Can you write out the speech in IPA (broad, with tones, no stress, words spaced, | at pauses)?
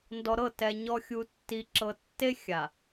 ndɔ˨ɾɤ˦˨tɛ˨ ɲɔ˨xʲu˨tːi˨ǁɤ˨ tːe˦xʲa˨